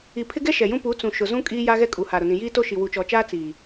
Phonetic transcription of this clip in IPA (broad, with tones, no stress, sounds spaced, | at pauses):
i˨ pʰ ɪ˦ ɡ ɛ˦ ʃ ɛ˨ j ũ˦ p u˨˦ t͡s ũ˨ ʃ ʊ˨ z ũ˦ kʼ iː˦ j a˦ ɣ ɛ˦ kʼ u˨ h a˨ ɾ ʊ˨ n ĩ˨ j iː˦ t o˦ ʃ i˨ w u˨ t͡ʃ ɔ˨ t͡ʃ aː˦ t͡s iː˨